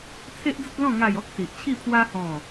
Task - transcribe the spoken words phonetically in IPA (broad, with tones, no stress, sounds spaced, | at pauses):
t͡sʰ e˦ ʔ d͡z ə˦ t̚ l ɔ̃˥˧ ŋ a˥˧ j ɔ˦ k̚ s i˨ ʔ t͡ɕʰ i˥˧ pʰ w a˦ h ɔ̃˥˧